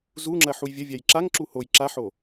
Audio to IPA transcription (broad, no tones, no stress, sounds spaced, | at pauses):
z u ŋ͡ǁ ɐ ħ u j vʲ ɐ vʲ a j ǁ a ŋ ǁ u h o j ǁ a ħ o